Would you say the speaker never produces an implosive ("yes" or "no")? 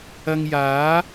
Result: yes